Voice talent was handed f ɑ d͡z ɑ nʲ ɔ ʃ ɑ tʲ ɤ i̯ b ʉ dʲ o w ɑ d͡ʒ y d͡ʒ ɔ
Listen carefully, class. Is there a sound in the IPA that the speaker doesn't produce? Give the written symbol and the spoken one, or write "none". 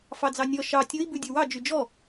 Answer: ɤ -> o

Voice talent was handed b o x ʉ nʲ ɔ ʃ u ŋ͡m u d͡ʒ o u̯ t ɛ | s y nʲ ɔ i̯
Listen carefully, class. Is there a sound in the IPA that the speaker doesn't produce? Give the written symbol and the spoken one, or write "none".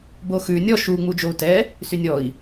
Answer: none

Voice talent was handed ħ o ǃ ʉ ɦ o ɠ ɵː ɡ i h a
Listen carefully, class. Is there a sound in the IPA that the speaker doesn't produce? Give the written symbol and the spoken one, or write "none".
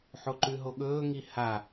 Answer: ɡ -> ŋ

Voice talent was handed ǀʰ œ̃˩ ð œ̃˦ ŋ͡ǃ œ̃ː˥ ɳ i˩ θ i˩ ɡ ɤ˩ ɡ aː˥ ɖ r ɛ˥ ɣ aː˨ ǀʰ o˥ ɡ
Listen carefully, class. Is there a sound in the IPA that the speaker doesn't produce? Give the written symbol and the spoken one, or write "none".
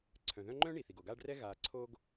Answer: ɤ˩ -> o˩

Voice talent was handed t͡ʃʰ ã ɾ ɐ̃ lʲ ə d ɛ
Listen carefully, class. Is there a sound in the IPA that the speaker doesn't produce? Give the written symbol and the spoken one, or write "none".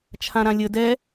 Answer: ɐ̃ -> ã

